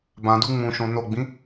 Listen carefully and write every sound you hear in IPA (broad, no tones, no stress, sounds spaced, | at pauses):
b ã d u ŋ͡m ũ ʃ õ n o ɡ͡b ĩ